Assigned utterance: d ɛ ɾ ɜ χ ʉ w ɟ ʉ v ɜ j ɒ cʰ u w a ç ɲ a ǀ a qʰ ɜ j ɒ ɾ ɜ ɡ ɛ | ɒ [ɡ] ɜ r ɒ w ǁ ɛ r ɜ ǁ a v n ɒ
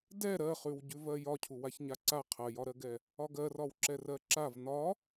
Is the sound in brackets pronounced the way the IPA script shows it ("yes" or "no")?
yes